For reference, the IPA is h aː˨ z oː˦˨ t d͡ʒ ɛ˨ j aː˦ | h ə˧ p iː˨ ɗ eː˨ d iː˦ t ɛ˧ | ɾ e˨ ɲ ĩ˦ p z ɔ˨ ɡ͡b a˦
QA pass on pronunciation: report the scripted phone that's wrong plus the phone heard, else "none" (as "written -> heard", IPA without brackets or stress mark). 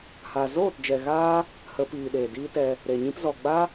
j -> ɣ